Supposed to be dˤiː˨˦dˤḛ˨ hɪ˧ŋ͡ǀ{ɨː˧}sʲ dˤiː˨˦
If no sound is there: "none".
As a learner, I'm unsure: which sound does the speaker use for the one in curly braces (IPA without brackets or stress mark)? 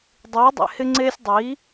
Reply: eː˧